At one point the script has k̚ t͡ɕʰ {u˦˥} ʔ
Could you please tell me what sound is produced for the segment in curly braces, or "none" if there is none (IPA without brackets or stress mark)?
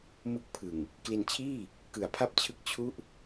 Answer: u˥˩